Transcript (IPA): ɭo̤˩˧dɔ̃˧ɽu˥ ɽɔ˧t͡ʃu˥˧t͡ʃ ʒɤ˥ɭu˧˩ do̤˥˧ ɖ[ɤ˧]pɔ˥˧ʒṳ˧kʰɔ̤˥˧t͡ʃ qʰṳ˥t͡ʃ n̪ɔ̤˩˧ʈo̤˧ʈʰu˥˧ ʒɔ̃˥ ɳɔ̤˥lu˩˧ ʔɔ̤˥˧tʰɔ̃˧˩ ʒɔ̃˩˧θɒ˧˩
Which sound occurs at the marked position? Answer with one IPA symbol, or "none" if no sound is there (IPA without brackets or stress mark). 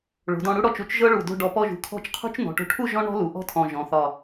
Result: ɔ˧